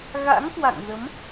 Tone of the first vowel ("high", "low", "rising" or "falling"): rising